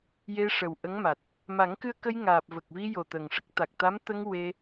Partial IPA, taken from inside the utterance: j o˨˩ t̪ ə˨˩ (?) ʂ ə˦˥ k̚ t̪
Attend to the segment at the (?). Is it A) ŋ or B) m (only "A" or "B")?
A